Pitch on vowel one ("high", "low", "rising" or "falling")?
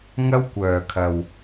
high